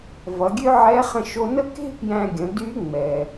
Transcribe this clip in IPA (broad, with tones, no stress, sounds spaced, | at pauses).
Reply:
v ʌ˩˧ ɡʲ ø˥ ʕ ɛ˧˥ χ ə̃˧ ʃ o˧ n ə˥ k e̤˥ p j æ̃˧ ɡʲ ə̃˩˧ d y˧˥ ŋ͡m ɛ˩